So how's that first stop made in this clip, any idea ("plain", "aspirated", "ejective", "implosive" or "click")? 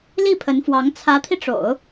aspirated